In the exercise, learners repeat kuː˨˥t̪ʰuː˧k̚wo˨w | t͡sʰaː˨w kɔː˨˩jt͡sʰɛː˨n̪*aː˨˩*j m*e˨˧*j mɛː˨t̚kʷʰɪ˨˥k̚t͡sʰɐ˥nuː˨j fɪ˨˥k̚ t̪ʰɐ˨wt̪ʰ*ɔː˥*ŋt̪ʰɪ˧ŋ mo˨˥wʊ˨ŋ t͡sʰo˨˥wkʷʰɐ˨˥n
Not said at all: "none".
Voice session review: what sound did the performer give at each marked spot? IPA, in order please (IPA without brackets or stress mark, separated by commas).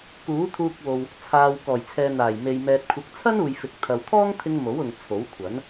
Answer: aː˨˩, e˨, ɔː˥